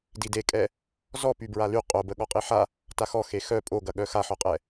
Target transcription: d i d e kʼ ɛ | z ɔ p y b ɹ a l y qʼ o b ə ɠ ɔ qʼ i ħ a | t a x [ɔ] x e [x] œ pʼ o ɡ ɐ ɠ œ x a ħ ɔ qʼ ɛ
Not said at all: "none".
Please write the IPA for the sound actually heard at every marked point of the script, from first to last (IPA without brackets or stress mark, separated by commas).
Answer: ɔ, x